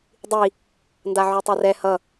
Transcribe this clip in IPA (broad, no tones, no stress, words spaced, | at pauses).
dˤi | ndaʕytˤarɛ hʌ